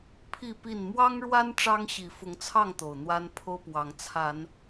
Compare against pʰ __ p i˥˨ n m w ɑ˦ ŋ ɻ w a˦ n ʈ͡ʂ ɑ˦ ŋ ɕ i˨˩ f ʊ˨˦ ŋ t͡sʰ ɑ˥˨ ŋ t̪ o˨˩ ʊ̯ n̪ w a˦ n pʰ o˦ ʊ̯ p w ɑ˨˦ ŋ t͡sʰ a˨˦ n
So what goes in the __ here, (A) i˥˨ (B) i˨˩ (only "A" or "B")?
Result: B